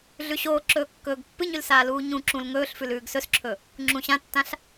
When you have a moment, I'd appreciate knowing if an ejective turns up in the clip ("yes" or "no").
no